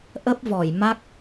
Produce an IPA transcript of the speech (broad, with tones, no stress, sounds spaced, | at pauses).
ʔ ə˦˥ p̚ v ɔ˧˩ j m a˦˥ k̚